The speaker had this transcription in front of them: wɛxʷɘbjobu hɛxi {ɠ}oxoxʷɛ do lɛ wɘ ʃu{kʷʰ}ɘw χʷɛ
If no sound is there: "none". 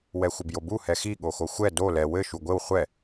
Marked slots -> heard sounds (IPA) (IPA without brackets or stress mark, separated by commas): ɠ, ɡʷ